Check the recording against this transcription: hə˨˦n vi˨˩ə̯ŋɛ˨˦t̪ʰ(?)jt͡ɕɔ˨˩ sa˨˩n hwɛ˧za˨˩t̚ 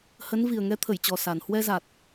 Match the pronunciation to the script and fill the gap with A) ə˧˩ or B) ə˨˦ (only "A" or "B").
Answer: A